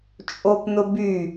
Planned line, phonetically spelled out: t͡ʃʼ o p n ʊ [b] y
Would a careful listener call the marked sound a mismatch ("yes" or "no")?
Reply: no